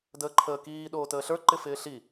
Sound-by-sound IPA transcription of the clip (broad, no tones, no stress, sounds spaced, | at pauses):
d əː ǃʰ əː k iː ɗ oː t əː ɬ ə˞ ǃ ɪ f ɪː ɬ i